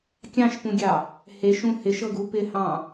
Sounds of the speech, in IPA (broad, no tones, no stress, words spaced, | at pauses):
kʲɑ̃ʃpũɡʲɑ | heʃũ hɪʃɤɡu pɪhɑ̃